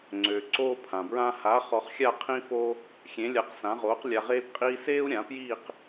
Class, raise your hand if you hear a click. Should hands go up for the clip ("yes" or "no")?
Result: yes